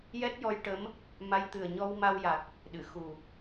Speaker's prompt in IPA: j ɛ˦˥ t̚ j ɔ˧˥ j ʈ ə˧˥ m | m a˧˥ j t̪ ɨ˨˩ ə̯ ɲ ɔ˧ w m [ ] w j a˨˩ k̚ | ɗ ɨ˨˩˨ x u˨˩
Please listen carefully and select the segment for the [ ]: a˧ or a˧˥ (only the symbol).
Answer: a˧